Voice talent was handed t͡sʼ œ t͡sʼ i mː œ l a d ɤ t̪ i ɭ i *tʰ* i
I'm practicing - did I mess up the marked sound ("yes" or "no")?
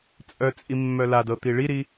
yes